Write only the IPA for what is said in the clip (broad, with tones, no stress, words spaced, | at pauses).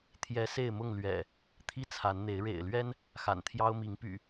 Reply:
t̪ʰjɛ˨˦se˥˨ɪ̯mʊ˥˨ŋ lɥɛ̰˨˩ | t̪ʰi˦t͡sʰa˨˦nn̪e˨˦ɪ̯ ɻḛ˨˩ɪ̯lɥɛ˦n | xa̰˨˩nt̪ʰjɑ˦ʊ̯mi˨˦ŋpy̰˨˩